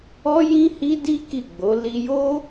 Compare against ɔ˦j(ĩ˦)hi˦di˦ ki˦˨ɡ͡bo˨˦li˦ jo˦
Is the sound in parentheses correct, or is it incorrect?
correct